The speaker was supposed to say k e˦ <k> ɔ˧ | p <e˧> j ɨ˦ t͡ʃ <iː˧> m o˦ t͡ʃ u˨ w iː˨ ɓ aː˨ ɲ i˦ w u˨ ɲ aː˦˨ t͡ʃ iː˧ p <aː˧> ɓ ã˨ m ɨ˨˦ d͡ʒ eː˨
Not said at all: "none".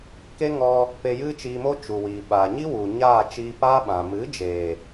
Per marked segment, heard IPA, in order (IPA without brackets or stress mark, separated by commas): ŋ, e˧, iː˧, aː˦